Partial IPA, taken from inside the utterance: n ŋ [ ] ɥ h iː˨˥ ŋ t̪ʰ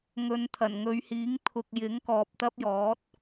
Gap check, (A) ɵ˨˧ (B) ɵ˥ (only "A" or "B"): A